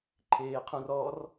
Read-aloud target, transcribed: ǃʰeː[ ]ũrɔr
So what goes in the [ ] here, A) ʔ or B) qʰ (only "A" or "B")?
B